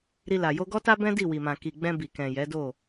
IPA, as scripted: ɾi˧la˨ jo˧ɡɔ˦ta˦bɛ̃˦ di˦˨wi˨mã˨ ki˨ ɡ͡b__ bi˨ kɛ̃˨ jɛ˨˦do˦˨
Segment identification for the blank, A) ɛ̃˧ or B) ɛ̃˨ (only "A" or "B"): A